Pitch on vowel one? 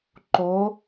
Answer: rising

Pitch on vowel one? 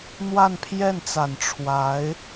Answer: falling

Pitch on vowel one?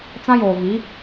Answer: high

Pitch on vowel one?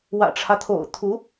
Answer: low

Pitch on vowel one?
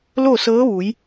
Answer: falling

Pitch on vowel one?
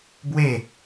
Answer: falling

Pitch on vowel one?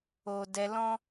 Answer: high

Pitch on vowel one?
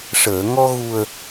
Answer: low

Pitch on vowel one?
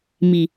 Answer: low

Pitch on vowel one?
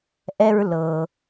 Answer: high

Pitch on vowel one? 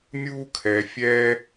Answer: high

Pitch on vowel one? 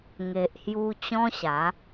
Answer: low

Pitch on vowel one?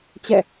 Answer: falling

